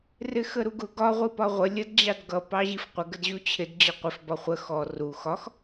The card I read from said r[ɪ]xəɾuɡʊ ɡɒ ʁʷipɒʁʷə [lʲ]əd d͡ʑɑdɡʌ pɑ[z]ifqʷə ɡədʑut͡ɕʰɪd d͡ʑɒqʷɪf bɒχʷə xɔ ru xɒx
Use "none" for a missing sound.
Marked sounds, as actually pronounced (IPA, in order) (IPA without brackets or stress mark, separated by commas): ɪ, lʲ, ʑ